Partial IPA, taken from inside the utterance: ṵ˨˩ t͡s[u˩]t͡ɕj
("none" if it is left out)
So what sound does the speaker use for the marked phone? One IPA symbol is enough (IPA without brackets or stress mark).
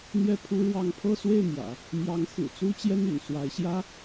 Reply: u˥